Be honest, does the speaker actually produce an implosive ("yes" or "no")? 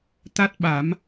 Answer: yes